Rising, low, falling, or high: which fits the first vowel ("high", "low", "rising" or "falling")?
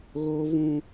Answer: high